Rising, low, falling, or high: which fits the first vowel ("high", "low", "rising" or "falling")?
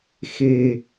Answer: low